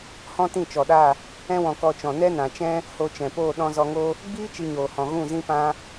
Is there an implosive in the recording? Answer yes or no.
yes